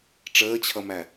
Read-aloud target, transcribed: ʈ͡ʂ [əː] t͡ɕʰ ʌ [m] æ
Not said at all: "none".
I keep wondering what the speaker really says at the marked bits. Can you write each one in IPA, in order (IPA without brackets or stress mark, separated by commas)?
əː, m